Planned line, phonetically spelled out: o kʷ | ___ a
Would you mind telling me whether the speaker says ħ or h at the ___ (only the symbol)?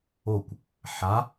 ħ